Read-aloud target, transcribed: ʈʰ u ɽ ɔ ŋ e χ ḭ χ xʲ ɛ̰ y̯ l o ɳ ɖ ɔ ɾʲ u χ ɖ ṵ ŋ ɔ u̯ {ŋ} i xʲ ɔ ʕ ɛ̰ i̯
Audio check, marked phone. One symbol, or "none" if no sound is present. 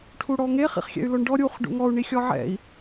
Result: ɳ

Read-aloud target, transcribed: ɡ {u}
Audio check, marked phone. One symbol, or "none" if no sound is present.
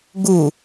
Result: u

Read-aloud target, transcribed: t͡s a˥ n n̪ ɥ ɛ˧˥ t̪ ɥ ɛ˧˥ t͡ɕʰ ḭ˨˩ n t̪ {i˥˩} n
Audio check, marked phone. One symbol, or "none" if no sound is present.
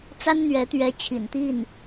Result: i˥˩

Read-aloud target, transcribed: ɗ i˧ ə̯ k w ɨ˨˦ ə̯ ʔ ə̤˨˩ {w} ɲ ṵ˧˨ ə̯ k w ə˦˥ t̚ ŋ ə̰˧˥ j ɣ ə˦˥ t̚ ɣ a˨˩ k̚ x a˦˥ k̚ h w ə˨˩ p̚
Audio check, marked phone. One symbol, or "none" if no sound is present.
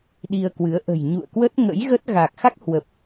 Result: j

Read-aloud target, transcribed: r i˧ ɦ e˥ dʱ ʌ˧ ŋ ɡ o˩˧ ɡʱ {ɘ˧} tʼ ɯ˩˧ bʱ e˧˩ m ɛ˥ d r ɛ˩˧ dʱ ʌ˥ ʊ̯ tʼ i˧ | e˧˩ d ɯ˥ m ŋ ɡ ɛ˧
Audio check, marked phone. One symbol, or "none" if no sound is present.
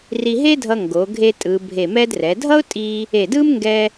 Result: e˧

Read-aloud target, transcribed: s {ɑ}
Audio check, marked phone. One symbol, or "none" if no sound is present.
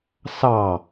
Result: ɑ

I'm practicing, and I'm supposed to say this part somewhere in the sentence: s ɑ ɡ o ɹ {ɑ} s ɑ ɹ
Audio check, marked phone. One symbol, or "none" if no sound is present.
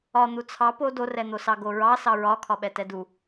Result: ɑ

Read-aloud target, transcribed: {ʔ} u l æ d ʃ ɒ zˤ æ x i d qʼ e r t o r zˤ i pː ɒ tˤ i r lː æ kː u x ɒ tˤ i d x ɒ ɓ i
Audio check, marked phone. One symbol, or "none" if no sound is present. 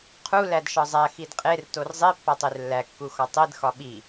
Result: qʰ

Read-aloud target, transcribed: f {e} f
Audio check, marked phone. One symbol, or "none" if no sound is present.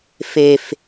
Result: e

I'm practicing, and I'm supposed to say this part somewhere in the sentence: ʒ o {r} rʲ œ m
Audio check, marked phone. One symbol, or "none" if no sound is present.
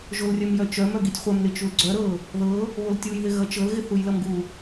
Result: l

